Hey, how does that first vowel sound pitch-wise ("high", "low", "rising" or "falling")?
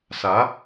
rising